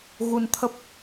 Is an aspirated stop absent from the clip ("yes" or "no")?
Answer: no